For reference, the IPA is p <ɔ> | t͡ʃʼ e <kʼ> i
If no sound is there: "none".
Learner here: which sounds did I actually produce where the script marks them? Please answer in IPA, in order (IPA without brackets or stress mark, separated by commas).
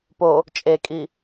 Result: o, kʼ